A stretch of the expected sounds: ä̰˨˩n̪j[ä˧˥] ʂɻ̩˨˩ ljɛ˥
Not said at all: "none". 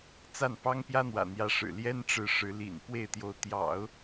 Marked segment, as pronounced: ä˧˥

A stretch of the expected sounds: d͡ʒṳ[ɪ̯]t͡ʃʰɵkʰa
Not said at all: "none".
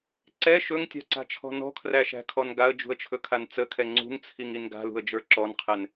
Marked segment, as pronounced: ə̯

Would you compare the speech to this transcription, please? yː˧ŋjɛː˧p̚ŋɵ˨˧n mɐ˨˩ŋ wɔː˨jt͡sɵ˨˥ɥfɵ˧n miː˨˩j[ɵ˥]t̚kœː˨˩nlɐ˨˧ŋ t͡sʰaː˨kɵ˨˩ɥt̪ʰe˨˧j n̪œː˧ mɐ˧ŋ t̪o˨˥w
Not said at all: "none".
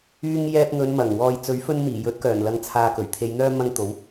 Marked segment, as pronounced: ɵ˨˥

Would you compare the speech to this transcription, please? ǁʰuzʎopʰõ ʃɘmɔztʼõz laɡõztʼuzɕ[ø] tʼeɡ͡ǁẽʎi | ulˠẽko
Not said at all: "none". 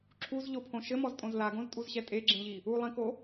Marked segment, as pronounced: ɛ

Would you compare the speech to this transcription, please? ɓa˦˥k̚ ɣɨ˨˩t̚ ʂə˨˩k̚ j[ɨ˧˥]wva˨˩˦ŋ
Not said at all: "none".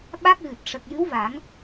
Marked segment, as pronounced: ɨ˧˥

